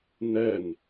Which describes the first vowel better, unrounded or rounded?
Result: unrounded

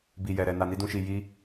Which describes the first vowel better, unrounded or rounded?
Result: unrounded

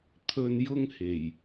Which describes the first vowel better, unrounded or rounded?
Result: rounded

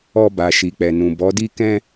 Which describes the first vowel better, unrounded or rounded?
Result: rounded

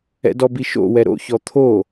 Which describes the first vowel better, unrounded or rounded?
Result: unrounded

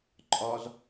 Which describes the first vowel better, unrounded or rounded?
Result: rounded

